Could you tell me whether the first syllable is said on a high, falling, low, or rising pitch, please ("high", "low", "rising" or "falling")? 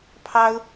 high